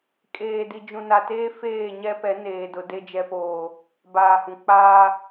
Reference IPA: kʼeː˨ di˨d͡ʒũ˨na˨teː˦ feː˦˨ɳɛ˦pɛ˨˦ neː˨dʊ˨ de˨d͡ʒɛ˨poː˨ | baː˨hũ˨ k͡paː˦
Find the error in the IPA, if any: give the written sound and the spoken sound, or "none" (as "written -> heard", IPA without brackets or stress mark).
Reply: ɳ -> ɲ